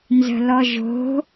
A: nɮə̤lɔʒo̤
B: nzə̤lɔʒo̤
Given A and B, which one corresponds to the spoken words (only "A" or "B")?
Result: B